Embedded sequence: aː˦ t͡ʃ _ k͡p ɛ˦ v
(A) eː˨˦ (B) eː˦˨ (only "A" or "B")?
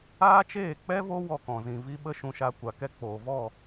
B